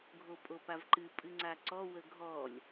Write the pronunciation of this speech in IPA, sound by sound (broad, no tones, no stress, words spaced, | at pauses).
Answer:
ɡʱopʼopavǃɨ pʼɨŋ͡ǀaǀɔ wəɡʱɔlʲ